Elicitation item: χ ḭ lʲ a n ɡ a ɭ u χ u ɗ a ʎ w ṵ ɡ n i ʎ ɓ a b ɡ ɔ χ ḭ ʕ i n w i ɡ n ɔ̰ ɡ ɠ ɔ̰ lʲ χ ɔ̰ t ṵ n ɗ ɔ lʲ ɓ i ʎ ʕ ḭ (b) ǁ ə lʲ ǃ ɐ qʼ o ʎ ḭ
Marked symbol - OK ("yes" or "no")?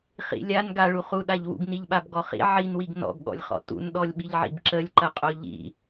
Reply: yes